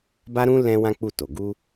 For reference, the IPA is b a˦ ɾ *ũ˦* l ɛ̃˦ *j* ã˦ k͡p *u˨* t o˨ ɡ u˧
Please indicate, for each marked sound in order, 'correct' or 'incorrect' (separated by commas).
correct, incorrect, incorrect